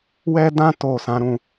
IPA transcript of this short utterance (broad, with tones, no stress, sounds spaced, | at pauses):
w ɛ˦ d ã˦ t o˦˨ s ã˨˦ ɾ ũ˦˨